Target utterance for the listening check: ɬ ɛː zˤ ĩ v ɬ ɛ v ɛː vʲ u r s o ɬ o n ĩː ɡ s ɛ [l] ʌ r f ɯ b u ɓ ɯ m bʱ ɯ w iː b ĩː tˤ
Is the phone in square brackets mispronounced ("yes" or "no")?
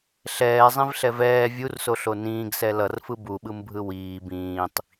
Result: no